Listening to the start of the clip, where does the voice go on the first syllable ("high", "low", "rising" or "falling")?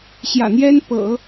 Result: low